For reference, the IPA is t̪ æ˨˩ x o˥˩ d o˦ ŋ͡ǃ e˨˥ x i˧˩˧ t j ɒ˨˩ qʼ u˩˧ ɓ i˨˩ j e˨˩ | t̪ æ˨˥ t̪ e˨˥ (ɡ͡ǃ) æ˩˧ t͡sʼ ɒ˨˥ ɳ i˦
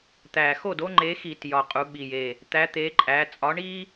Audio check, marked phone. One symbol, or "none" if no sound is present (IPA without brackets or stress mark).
ǃʼ